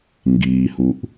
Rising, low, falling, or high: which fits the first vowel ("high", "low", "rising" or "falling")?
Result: low